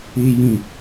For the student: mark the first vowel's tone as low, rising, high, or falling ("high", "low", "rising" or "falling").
high